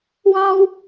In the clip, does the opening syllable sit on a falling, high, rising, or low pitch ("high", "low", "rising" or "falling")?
high